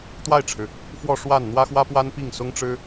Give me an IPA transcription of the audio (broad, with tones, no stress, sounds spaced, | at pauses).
t̪ w a˥˩ ɪ̯ ʈ͡ʂʰ ɻ̩˩ | f w ɔ˥˧ ʂ w a˥˩ n n̪ w ä˥ x w ä˥ p w a˥ n p i˥˩ ŋ s ʊ˥ ŋ ʈ͡ʂ ɻ̩˥